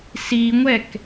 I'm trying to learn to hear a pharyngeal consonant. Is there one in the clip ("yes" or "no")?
no